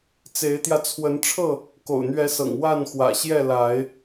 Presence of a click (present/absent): absent